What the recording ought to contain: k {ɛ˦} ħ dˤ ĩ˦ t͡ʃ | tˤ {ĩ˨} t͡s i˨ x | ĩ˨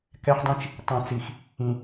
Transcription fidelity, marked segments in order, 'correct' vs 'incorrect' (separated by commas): correct, correct